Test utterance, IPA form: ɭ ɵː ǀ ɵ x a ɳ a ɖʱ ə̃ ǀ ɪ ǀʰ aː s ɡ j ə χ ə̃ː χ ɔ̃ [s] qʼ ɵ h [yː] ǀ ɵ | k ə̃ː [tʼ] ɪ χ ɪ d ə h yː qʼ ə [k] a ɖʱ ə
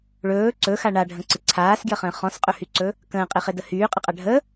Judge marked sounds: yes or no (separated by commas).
yes, no, no, no